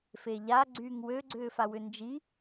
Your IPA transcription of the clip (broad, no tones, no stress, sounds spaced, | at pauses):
f e ʎ a ɡ͡ǀ yː ŋ w ø ɡ͡ǀ ʏː f a w ʏ n d͡ʒ i